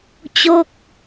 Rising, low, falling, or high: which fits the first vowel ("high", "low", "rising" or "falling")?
falling